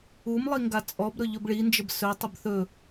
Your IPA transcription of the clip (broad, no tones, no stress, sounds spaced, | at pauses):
u m lˠ i ŋ ɡ a t͡sʼ ɔ b ɾ ɵ ʎ ɵ b ɭ i n d͡ʒ ə b s ɵ tˤ ə b θ ɵ